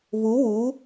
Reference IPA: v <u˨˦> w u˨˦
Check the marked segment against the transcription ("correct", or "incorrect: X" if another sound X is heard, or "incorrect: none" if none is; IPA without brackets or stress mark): correct